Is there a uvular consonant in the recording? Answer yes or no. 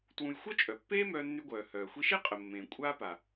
yes